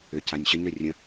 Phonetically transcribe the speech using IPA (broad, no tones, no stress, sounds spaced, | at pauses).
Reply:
ʏ c a nʲ ɕ ə ɲ ɾ ɵ rʲ ə̃